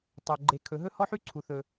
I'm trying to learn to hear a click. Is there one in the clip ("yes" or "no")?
yes